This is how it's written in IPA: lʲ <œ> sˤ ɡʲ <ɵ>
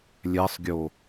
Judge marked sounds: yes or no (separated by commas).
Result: no, no